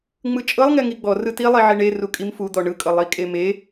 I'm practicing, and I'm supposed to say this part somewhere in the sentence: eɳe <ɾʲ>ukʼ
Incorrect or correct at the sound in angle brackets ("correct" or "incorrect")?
incorrect